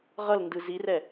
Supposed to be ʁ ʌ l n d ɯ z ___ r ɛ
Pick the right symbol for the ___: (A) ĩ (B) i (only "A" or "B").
B